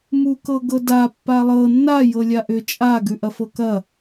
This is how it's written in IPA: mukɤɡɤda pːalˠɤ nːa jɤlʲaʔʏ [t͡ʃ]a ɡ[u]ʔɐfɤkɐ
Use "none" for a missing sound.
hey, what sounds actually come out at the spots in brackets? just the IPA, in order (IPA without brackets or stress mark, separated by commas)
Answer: t͡ʃʼ, ʉ